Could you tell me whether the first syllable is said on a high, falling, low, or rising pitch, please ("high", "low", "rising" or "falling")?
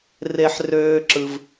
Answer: high